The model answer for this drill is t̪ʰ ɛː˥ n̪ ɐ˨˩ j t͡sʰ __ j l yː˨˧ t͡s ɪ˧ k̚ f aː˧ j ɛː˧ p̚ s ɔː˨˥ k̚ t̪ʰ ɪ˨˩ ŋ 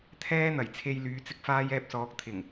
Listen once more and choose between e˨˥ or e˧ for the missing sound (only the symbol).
e˧